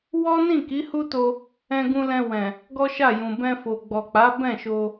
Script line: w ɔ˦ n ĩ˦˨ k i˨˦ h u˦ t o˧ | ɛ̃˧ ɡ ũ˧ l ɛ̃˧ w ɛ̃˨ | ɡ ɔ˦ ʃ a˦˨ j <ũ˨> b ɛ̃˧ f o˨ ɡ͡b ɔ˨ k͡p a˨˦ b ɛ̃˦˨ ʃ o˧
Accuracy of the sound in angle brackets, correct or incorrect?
correct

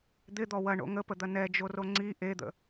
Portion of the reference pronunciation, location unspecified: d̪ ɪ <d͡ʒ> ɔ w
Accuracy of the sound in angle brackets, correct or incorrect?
incorrect: d̪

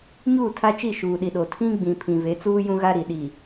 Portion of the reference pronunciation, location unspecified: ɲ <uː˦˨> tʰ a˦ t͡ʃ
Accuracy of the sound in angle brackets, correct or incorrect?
correct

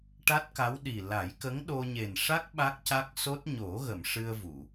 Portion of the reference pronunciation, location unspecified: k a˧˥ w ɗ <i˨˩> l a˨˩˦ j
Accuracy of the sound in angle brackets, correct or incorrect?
correct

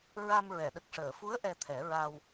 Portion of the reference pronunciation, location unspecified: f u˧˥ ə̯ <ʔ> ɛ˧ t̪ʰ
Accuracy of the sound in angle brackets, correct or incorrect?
correct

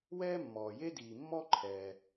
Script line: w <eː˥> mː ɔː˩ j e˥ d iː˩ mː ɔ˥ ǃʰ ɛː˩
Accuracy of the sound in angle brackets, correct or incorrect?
incorrect: ɛː˥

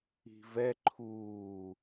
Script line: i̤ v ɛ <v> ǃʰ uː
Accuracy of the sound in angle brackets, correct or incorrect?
incorrect: none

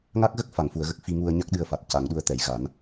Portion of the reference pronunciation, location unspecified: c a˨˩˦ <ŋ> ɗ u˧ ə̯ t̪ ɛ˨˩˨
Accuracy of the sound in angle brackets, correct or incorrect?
correct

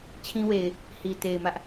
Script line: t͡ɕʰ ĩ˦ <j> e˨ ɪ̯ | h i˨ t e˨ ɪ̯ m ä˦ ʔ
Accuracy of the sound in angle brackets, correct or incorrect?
incorrect: w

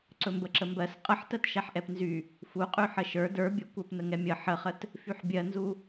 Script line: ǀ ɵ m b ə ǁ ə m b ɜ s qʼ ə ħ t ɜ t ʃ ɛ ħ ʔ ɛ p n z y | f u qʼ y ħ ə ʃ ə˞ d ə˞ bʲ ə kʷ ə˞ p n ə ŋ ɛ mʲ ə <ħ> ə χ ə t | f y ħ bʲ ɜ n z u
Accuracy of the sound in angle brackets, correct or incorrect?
correct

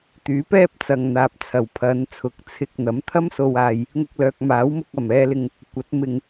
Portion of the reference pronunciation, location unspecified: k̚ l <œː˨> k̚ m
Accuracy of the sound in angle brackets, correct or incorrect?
correct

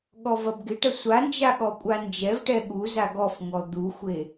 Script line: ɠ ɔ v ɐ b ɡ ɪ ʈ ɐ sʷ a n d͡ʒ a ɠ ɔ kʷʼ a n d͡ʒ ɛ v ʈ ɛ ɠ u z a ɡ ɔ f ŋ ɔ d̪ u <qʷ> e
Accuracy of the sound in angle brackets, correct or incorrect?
incorrect: xʷ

